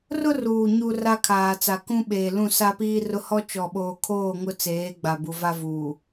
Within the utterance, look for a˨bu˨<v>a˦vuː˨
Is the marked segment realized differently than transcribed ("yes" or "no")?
no